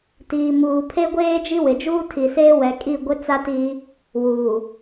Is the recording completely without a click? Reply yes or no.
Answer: yes